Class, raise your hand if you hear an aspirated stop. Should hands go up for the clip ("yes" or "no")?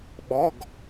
no